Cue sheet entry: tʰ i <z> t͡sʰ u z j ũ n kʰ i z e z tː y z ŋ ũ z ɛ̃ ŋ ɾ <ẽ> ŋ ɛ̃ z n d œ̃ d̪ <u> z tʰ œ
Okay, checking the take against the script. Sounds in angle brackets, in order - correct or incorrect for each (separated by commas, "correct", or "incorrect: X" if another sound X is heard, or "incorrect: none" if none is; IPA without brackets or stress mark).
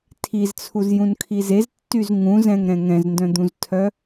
correct, incorrect: ɛ̃, incorrect: ũ